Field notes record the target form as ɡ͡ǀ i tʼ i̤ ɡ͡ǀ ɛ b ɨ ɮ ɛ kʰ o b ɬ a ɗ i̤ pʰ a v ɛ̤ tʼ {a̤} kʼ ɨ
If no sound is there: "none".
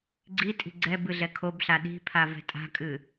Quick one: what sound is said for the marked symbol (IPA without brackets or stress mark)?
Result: a̤